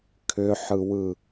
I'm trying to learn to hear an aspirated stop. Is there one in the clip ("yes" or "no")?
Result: yes